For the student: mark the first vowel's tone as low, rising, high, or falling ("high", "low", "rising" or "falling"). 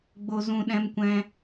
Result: low